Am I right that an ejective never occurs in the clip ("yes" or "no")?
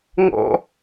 yes